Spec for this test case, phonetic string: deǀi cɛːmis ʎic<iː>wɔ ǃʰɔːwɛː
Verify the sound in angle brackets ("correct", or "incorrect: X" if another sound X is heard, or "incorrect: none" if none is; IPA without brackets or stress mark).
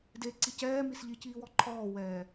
correct